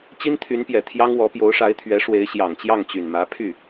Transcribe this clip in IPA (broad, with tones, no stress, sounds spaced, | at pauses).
t͡ɕ i˥ n t̪ʰ y˧˥ n p j ɛ˨˩ t̪ʰ j ɑ˥ ŋ w ɔ˧˥ p j o˧˥ ʊ̯ ʂ a˧˥ ɪ̯ t̪ʰ ɥ ɛ˧˥ ʂ w e˧˥ ɪ̯ ɕ j ɑ˨˩ ŋ t͡ɕ j ɑ˥˩ ŋ t͡ɕ y˨˩ n m ä˧˥ pʰ y˥˩